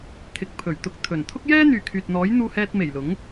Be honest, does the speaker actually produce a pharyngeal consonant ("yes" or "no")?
no